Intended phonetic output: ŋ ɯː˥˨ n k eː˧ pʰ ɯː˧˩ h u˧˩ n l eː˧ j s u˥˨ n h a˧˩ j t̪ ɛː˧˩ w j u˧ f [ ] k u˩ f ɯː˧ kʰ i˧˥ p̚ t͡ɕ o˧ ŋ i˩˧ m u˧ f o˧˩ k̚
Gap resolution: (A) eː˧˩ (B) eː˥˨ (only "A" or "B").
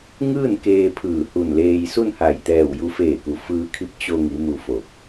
A